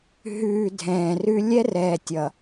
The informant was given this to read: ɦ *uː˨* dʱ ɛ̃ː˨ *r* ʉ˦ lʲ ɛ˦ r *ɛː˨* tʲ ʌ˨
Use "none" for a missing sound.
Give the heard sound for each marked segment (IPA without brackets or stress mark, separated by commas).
ʉː˨, r, ɛː˨